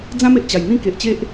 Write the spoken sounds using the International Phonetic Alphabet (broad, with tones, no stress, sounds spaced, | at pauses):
d͡z ã˦ m e˨ ʔ t͡ɕ a˨˩ j n̪ ĩ˦ k e˨ ʔ t͡ɕ e˦ ʔ